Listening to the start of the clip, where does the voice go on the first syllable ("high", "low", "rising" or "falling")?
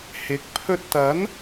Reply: rising